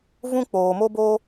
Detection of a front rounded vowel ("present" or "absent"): absent